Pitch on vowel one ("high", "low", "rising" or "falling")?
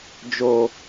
low